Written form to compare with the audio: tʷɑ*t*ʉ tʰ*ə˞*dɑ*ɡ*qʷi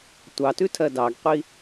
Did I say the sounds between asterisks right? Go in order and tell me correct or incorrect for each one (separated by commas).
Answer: correct, incorrect, correct